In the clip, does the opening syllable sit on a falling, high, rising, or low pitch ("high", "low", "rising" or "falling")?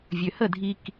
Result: low